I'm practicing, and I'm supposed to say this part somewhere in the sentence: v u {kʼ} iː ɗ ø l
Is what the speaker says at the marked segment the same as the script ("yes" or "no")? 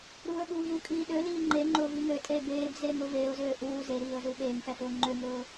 yes